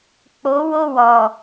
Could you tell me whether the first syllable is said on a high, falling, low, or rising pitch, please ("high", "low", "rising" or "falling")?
rising